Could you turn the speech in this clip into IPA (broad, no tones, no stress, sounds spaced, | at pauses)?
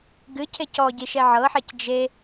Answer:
ɡ ɨ cʰ e c ɔ ɟ i ʃ ɛ ʕ ɤ ħ ɛ c d͡ʒ e